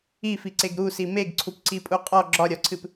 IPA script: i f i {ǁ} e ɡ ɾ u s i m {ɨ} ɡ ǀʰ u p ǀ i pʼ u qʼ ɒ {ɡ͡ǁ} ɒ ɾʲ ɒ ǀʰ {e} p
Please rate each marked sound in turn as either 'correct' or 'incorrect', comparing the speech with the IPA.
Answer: incorrect: ǀ, incorrect: e, correct, incorrect: ɨ

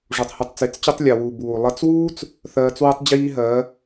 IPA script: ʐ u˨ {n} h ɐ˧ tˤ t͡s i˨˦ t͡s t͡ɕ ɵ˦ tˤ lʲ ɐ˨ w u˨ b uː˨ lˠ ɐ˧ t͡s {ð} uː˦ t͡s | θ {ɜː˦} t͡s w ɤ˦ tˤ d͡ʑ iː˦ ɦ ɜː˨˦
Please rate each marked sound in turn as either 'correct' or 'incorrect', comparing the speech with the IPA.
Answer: incorrect: tˤ, incorrect: w, incorrect: ɜː˧

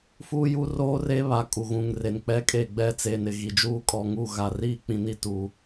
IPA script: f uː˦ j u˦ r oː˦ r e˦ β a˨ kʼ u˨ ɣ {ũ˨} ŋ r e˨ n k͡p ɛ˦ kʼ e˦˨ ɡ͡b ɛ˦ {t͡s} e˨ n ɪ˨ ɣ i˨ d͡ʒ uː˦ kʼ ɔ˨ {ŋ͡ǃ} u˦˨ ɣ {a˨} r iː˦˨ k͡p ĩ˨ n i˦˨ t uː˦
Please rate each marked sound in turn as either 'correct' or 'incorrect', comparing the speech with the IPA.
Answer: correct, correct, incorrect: ŋ, correct

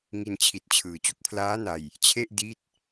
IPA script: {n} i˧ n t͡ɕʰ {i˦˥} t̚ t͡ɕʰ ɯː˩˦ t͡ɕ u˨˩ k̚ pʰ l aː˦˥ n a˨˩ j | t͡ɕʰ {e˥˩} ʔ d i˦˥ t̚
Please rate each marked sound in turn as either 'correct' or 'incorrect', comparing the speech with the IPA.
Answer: incorrect: ŋ, incorrect: i˨˩, correct

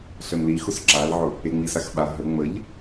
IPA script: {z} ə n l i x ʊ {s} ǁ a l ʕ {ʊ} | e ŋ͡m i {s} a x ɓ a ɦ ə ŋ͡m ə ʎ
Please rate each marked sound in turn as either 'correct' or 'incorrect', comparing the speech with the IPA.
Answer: incorrect: ɬ, correct, correct, correct

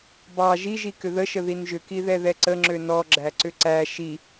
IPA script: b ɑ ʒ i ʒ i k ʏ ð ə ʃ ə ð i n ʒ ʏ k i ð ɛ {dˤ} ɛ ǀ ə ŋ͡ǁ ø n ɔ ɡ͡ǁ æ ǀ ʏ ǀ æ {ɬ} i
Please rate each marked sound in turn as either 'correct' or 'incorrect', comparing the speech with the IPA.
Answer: incorrect: ð, incorrect: ʃ

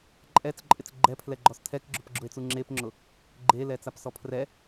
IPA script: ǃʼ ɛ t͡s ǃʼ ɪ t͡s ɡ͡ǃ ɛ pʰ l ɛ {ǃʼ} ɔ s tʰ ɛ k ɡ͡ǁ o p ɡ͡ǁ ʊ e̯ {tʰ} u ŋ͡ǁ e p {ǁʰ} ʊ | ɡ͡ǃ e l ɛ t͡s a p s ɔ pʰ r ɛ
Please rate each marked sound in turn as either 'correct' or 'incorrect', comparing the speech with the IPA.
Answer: incorrect: ɡ͡ǃ, incorrect: t͡s, incorrect: ŋ͡ǁ

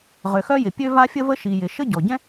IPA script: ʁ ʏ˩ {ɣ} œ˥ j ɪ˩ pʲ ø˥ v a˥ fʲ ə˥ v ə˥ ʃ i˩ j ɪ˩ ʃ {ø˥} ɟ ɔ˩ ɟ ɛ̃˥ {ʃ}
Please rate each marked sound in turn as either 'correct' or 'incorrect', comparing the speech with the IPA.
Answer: incorrect: x, incorrect: ə˥, incorrect: none

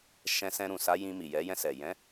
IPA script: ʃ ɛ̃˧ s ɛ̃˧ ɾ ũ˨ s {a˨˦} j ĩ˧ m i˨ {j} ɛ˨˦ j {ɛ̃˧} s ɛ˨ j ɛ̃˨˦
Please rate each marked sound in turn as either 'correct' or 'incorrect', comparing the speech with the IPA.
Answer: correct, correct, correct

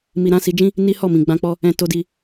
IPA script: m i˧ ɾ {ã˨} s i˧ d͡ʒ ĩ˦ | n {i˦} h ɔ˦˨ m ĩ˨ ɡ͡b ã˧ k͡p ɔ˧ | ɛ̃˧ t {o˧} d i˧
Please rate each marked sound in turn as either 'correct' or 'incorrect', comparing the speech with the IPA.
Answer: incorrect: ã˦, correct, correct

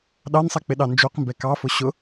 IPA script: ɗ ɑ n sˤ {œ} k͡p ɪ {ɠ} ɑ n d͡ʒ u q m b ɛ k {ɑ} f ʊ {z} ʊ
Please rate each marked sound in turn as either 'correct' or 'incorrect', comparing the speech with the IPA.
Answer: incorrect: ɛ, incorrect: ɗ, correct, incorrect: ɕ

